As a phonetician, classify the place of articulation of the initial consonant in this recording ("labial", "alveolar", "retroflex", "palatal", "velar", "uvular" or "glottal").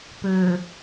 labial